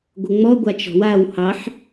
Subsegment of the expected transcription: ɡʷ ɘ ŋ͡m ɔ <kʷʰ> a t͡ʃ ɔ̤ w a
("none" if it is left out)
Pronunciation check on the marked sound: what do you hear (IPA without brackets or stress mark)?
ɡʷ